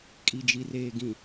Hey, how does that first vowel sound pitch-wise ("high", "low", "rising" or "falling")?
low